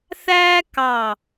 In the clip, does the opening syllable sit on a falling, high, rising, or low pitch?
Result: high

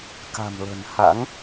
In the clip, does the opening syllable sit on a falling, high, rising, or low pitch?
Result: low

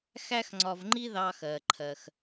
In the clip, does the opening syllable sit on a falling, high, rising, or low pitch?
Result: high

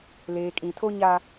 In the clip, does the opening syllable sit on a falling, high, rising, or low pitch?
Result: low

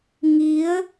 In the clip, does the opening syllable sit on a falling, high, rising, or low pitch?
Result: rising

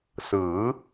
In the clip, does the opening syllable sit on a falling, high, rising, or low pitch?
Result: rising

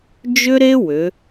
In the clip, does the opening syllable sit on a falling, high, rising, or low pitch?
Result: high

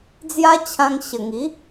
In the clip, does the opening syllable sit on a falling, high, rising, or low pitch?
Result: high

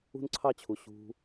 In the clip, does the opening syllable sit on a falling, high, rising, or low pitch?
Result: high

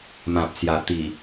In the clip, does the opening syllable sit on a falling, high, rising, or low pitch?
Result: low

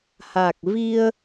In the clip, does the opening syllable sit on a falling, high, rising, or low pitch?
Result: low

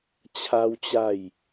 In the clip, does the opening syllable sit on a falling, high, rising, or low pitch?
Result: high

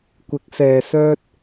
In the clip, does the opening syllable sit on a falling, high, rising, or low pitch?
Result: rising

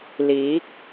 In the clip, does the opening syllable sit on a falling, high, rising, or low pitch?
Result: rising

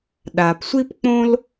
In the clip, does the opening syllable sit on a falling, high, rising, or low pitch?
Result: low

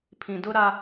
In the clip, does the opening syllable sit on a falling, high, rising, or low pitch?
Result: low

